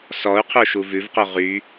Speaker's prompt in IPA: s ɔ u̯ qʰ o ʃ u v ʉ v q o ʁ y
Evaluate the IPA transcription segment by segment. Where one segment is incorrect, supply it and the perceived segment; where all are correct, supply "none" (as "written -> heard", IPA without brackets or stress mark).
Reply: none